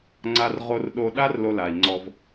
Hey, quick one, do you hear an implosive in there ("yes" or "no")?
yes